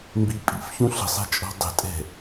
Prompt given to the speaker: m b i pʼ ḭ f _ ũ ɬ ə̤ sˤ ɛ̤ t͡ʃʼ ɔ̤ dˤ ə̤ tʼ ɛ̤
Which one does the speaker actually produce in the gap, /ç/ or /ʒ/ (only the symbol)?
ç